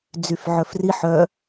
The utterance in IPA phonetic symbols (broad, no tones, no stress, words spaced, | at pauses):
d͡zyfʕœfri ħœ